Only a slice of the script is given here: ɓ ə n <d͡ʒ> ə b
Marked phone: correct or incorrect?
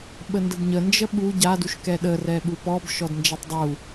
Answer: incorrect